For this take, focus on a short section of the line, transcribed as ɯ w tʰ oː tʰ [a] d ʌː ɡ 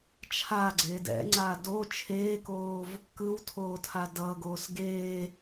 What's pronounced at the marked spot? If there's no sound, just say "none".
a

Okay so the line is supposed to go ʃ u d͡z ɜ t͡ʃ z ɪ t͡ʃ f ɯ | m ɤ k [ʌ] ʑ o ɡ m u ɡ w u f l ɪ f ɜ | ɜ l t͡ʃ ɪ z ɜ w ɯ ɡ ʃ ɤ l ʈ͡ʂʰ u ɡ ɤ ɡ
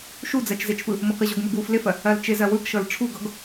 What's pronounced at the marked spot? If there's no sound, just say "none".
ə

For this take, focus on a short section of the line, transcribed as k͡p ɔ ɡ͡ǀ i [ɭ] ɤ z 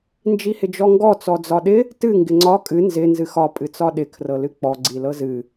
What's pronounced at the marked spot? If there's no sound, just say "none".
l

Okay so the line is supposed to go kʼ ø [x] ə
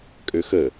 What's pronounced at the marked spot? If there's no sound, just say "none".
x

